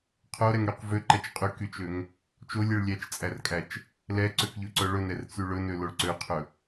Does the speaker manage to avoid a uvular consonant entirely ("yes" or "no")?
no